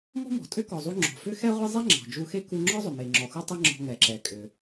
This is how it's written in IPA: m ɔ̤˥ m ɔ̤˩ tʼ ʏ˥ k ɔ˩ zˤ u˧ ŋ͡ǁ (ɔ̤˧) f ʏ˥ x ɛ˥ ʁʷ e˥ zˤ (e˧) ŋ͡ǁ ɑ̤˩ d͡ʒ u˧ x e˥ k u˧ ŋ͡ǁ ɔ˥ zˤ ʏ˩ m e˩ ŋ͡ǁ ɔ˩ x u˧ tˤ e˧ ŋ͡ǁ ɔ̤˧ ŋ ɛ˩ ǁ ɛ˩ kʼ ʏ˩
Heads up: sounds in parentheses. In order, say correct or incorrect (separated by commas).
incorrect, incorrect